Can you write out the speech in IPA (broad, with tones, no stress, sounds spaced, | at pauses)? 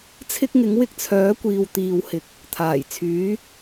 t͡sʰ ɪ˥ k̚ ŋ ɪ˨˥ ŋ w ɪ˥ k̚ t͡sʰ œː˨˥ kʷ iː˨ w t̪ iː˨ w h ɪ˨ k̚ | t̪ʰ aː˨˩ j t͡sʰ yː˨˥